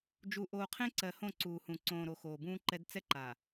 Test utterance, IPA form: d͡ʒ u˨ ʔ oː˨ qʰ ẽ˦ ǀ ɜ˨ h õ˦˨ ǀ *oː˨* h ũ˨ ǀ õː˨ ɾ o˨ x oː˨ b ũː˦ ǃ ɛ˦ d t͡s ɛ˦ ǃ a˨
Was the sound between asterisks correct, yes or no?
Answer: no